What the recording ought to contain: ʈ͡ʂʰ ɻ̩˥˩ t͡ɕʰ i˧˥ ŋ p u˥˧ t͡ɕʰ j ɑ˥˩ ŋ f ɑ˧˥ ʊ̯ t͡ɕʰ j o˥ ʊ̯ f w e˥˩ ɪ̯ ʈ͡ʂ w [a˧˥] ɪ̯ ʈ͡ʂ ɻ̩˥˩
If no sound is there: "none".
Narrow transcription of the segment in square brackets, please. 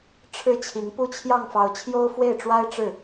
a˥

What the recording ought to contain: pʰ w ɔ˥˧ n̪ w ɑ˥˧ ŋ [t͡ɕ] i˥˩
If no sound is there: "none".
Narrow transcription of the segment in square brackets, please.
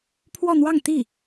t̪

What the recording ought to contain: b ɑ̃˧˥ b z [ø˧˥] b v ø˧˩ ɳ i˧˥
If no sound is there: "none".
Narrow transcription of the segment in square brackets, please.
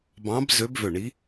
ø˧˥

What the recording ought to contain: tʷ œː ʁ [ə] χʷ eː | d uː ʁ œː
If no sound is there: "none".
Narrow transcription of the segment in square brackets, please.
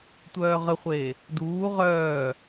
ə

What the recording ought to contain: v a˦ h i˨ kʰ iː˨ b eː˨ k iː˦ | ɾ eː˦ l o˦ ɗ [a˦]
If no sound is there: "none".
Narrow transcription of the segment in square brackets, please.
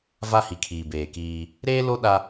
a˦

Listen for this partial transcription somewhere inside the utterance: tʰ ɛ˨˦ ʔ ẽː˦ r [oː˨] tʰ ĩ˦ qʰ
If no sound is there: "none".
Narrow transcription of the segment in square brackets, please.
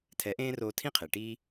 oː˧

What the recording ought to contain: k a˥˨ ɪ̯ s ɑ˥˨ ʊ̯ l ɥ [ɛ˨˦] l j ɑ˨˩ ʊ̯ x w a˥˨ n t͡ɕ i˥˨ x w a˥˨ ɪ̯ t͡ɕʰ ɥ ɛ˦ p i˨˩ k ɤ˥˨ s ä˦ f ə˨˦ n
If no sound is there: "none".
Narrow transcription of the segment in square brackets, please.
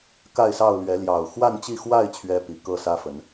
ɛ˨˦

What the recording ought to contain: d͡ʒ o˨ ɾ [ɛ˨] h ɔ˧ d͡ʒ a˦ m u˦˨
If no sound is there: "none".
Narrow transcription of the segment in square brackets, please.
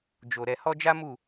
ɛ˨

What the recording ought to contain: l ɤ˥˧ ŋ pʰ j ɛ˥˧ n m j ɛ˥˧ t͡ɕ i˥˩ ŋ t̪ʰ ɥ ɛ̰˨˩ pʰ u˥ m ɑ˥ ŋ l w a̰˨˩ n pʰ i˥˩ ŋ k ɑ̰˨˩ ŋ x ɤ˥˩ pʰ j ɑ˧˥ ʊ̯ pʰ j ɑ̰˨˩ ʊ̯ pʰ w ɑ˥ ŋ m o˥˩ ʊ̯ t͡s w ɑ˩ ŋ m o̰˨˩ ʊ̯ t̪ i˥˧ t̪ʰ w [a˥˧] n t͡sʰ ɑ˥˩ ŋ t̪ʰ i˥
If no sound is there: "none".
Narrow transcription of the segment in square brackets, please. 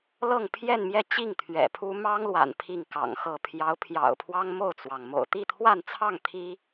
a˥˧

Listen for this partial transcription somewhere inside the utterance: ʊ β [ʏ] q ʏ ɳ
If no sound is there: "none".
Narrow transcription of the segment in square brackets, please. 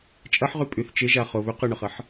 ʏ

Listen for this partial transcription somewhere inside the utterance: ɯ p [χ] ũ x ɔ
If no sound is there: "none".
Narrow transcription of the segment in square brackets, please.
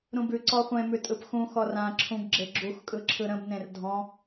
x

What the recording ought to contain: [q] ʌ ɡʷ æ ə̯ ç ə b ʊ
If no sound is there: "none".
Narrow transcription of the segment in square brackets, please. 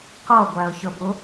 q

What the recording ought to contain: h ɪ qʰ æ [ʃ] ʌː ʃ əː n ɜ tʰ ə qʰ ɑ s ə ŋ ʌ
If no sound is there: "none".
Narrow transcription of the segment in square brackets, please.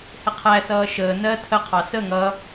s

